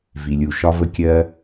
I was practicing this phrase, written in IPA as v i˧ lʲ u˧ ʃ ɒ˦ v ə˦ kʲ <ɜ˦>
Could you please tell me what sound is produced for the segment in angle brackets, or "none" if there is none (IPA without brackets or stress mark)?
ɜ˦